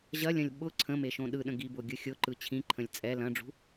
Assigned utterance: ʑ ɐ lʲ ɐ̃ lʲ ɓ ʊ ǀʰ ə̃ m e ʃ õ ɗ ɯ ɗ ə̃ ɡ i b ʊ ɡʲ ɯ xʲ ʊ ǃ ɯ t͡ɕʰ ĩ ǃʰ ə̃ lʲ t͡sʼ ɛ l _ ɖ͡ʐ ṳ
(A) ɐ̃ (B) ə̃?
A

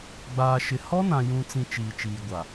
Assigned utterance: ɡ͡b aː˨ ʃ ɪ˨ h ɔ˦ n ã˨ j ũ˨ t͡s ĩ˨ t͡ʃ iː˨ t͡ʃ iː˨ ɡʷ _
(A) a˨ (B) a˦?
A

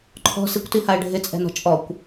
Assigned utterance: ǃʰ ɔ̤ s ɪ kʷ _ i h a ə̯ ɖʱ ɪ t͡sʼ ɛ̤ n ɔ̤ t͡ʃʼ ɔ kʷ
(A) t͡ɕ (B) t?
B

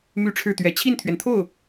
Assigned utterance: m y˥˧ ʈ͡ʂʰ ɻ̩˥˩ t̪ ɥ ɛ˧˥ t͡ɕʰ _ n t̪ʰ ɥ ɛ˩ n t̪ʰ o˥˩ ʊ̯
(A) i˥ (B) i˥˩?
B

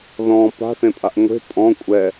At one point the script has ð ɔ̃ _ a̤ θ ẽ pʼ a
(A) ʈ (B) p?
B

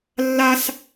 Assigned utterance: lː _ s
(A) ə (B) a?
B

